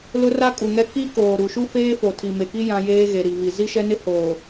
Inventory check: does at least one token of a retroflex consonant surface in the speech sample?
no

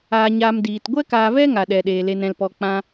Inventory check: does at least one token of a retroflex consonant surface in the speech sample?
no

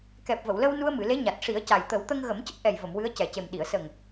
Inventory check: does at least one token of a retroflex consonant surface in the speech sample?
yes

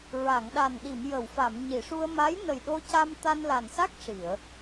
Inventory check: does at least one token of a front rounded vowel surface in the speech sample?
no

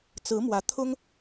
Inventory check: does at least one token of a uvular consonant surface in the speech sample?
no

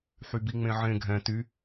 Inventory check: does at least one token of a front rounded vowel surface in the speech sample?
yes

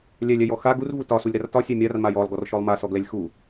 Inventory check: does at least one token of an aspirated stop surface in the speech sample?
no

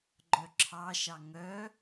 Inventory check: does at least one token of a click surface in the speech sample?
yes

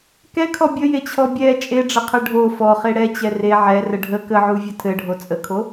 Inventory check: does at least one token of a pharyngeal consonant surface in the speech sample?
yes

